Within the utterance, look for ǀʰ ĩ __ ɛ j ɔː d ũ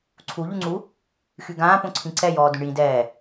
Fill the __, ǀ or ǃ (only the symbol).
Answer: ǀ